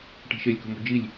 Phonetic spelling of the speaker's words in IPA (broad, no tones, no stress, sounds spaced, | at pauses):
ʈ i̤ ʃ e lʲ k o̤ m o̤ d͡ʒ i lʲ